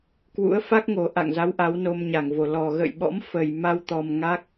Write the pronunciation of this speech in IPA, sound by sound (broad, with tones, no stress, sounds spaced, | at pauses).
k w ṵ˧˥ ə̯ f a˦˥ k̚ ŋ o˨˩ ʔ a̰˧˨ ŋ z a˨˦ w ʔ a˨˦ w n o˧ m ɲ a˧˩ ŋ v o˧˩ l ɔ˨˩ ɣ ə̰ː˧˨ j ɓ ɔ̰˧˥ m f ə˨˩ j m a˧ w t̪ ɔ˨˩ m ŋ a˦˥ k̚